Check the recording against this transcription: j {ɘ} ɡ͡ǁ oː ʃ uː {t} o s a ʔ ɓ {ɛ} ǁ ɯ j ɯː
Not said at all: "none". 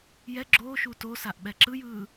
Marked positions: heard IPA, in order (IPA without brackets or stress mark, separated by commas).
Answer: ɛ, t, ɛ